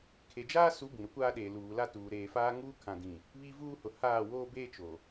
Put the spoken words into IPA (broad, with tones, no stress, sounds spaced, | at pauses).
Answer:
kʰ e˨ d͡ʒ aː˦ s u˨˦ b ĩ˨ ɾ ʊ˦ kʷ aː˦ ɗ eː˨ l uː˨ l a˦ t uː˨ ɾ eː˨ f aː˦ ŋ uː˦ kʰ ã˨ d ĩ˨ | β i˦ v uː˦ h ʊ˨ h aː˦˨ w oː˦ b eː˦ t͡ʃ o˨